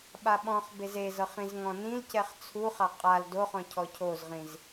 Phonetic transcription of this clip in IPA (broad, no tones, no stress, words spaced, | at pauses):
ɓaɓɔ̃χbez ezɤχ ĩzŋɔ̃nĩlcɛχ t͡sʰuχa qʼal doχɔ̃ cʰɔcʰozʁĩz